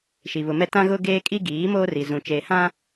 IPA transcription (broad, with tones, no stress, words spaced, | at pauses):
ʃi˨βʊ˨mɛ˦ tã˦ɣʊ˦ ɡeː˦kʼi˦ ɡiː˨˦ moː˦ri˨ zũ˨t͡ʃeː˨hã˦